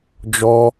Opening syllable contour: high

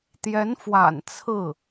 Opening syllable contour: rising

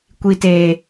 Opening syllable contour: high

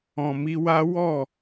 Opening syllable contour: low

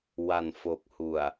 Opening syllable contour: low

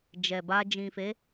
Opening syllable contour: low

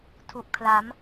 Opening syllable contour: low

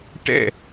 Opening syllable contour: falling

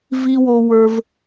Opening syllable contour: high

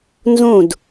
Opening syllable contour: falling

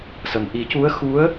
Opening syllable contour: low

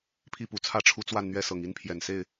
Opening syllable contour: high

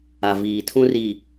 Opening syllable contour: low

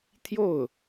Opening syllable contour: falling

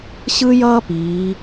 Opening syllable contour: high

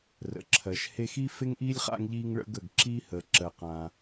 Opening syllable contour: low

